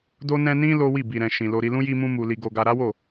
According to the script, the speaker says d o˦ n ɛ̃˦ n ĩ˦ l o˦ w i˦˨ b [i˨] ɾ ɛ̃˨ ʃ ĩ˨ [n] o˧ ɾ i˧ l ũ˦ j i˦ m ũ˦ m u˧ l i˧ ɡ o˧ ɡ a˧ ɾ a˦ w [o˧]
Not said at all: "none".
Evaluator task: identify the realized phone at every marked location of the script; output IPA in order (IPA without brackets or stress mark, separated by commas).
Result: i˨, l, o˦˨